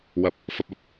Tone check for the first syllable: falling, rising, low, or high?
rising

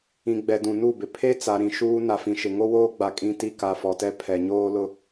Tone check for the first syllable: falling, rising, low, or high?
low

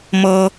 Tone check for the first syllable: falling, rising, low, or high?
high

